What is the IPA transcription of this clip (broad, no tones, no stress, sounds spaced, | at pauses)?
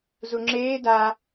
z u ŋ͡ǁ eː d a